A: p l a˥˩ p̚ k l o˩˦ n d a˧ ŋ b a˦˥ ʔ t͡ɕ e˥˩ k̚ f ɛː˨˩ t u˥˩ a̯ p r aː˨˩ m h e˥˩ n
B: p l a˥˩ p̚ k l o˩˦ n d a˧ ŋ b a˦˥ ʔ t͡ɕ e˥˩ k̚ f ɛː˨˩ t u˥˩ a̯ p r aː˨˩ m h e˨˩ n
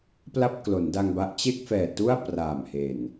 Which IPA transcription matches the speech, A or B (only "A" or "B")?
B